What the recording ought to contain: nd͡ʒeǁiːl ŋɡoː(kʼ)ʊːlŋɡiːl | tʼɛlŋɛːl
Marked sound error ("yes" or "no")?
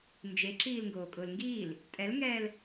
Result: no